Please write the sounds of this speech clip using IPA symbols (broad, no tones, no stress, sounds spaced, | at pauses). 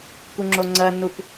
k u ŋ͡ǁ o ŋ͡ǀ ɜ nː u p